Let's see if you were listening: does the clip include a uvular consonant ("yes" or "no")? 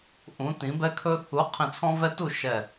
yes